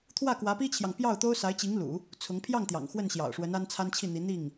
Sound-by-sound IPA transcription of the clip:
t̪ʰ w ä˥˩ k w ä˧˥ p i˥ t͡ɕʰ j ɑ˨ ŋ p j ɑ˥˩ ʊ̯ t̪ o˥ ʊ̯ s a˧˥ ɪ̯ t͡ɕ i˧˥ ŋ l ṵ˨˩˦ | t͡sʰ ʊ˧˥ ŋ pʰ j ɑ˥˩ ŋ t̪ j ɑ̰˨˩ ŋ x w ə˥˩ n ɕ j ɑ̰˨˩ ʊ̯ ʂ w ə˧˥ n a˥ n t͡sʰ a˥ n t͡ɕʰ i˥˩ n̪ i˧˥ n̪ i˥˩ ŋ

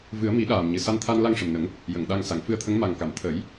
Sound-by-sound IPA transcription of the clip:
v ɨ˨˩˦ ə̯ m i˨˩˦ ɗ aː˨˩ m ɲ ɨ˨˩ s a˧ n t̪ʰ a˧ n l a˧ ŋ ʂ ə˨˩ m n ə˨˩˦ ŋ | j ə˨˩˨ ŋ ɗ a˧ ŋ s a˨˩˨ ŋ f ɨ˧ ə̯ t̪ʰ ə˧˥ ŋ m a˨˩ ŋ k a˨˩˨ m t̪ʰ ə˨˩˦ j

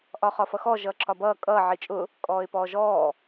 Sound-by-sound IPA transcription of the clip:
ʔ ɒ χ ɒ f ʌ x ɔ ʒ ʌː ǁ ɒ b ʌː kʼ ʌː ʕ i t͡ʃʼ ʊ | kʼ ɔː ɪ̯ p ɔː ʒ ɔː

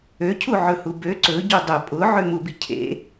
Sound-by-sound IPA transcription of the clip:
ø cʰ u ʕ ɵ h u b ø ǀ ɵ ɟ u dˤ ʊ pʼ ʊ ʕ ø m u b i cʰ ḛ

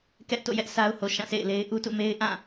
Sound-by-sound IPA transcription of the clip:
k ɛ˦ ʔ t o̰˦˨ j ɛ˦ ʔ s a˦ ʊ̯ h o˨ ʃ ã˦˨ s ḛ˦˨ ɪ̯ l e˦ ɪ̯ ʔ u˦ t ṵ˦˨ m e˦ ɪ̯ ʔ ã˦˨

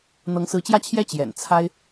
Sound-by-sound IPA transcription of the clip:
n̪ ɤ˧˥ ŋ s ɹ̩˧˥ t͡ɕ j ä˥˩ t͡ɕʰ j ɛ˥ t͡ɕ j ɛ̰˨˩ n t͡sʰ a˥ ɪ̯

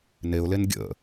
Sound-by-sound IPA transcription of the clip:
n e ʊ̯ l e n ɡʲ ə̰

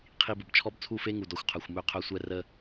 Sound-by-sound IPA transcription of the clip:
qʰ i˨ b ə˨ b t͡ʃʰ ɔ˦ b t͡sʰ u˦˨ f e˦ ŋ u˨ d ɔ˨ xʷ qʰ œ˨ xʷ m ø˦ qʰ œ˦ sʷ ɛ˦ r ə˦

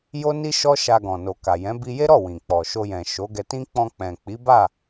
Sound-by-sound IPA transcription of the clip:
j o˦ n i˦ ʃ ɔ˦ ʃ a˧ ɡ ɔ̃˨ n o˨ k a˨ j ɛ̃˨˦ b i˧ j e˦ ɾ ɔ˦˨ w ĩ˨ k͡p ɔ˨ ʃ o˧ j ɛ̃˨ ʃ o˨˦ ɡ ɛ˧ t ĩ˦ k͡p ɔ̃˧ k͡p ɛ̃˨ k͡p i˨˦ b a˦˨

